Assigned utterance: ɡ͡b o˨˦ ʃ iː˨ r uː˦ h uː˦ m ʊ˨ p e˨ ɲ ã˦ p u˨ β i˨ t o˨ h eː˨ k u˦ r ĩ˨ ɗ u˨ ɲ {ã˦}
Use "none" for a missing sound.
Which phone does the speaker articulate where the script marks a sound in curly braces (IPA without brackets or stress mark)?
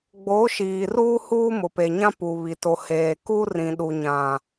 ã˨